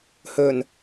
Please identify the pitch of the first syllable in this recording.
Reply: low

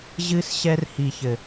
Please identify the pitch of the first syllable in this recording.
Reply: high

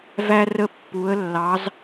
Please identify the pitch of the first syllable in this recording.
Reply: high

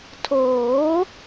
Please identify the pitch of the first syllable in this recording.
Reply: rising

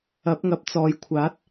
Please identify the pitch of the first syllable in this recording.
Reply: rising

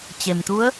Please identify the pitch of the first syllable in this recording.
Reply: low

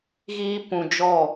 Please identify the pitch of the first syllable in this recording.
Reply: high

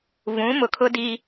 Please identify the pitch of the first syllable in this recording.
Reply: rising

